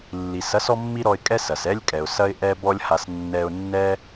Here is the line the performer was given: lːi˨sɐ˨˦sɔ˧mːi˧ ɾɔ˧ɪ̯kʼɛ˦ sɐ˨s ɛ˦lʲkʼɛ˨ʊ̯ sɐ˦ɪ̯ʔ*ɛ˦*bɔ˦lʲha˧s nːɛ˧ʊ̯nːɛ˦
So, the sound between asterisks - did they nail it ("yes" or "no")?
yes